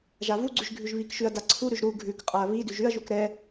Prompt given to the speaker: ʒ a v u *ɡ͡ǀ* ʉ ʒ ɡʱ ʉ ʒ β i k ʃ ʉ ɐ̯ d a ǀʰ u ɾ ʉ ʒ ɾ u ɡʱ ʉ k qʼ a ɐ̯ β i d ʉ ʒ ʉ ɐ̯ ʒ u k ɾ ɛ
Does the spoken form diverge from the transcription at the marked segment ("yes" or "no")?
no